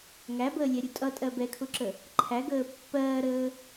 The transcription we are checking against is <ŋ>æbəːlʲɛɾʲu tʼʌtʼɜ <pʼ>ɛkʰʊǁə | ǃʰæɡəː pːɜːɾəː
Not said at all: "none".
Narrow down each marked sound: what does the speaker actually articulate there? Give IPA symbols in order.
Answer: ŋ, b

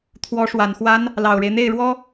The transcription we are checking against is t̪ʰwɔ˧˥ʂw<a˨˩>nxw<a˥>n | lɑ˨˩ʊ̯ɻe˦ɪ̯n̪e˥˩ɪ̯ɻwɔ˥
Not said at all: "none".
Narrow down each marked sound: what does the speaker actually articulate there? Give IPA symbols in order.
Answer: a˨˩, a˥

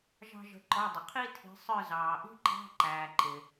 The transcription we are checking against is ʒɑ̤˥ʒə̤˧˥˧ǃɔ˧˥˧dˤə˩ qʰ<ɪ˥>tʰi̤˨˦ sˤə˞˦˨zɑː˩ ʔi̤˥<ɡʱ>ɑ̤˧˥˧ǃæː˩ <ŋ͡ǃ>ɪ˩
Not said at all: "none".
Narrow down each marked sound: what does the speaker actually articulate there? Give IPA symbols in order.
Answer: i˥, ǃ, ǃ

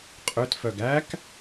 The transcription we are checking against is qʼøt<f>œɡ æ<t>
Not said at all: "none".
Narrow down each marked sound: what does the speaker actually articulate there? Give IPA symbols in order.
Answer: f, k

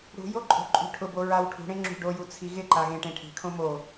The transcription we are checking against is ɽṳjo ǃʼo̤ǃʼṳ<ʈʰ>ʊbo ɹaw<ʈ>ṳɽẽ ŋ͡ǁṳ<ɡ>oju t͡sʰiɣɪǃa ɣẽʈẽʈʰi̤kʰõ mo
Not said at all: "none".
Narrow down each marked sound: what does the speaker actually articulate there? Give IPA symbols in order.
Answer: ʈʰ, ʈʰ, ɖ

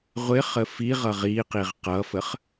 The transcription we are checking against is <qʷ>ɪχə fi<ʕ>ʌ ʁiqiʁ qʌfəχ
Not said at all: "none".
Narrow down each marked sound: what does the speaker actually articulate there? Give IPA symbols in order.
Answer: ʁʷ, ʁ

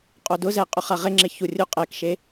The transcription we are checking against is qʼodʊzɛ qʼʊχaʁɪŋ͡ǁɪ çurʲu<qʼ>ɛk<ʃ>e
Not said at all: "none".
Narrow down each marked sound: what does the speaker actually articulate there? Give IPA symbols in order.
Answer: qʼ, ʃ

